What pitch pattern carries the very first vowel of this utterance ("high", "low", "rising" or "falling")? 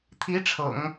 rising